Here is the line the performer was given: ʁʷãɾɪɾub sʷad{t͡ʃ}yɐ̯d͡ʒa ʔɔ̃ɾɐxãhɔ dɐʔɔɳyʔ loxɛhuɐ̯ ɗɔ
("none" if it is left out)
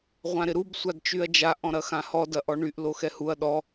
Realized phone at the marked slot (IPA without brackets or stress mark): t͡ʃ